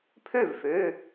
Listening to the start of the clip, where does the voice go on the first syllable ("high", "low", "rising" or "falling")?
falling